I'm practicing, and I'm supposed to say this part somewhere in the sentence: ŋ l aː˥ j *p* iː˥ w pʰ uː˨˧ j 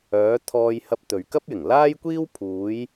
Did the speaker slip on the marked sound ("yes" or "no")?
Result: yes